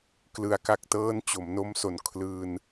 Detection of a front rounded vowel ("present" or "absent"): absent